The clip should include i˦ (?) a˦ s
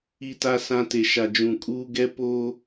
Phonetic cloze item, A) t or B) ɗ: A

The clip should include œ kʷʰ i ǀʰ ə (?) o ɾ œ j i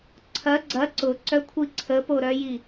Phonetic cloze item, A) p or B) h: A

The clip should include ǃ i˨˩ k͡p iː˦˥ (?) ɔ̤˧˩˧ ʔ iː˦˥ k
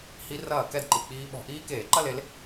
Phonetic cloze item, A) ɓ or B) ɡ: A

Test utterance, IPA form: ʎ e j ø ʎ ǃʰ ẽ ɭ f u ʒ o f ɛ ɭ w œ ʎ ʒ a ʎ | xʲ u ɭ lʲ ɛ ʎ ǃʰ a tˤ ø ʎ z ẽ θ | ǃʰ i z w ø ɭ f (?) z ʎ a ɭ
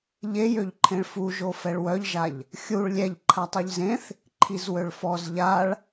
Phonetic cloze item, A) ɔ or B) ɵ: A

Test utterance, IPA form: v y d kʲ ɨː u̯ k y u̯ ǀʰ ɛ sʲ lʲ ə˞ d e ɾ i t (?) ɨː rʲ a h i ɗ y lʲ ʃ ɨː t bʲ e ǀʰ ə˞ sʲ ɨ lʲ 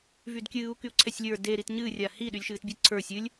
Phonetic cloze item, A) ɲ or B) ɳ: A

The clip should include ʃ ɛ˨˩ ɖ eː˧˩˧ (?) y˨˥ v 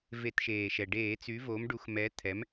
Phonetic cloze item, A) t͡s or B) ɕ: A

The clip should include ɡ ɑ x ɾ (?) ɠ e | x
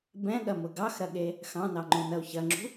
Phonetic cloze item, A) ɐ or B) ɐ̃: A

